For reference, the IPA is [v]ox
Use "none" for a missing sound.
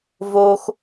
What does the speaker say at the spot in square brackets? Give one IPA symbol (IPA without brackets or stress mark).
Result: v